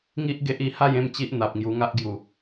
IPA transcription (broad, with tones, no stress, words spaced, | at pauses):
ŋi˦ʔɡe˦ʔi˧ ha˥˧jẽ˥˧m t͡ɕi˦ʔn̪a˨p̚ŋju˧ ŋa˦ʔɡju˨˩